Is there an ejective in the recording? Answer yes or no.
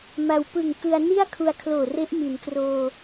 no